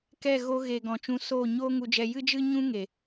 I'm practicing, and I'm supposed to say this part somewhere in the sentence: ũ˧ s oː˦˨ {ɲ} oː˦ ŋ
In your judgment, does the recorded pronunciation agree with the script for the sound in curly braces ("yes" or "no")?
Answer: yes